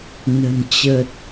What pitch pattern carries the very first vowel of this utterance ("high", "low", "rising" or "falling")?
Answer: low